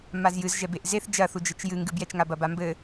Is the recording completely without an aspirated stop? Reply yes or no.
yes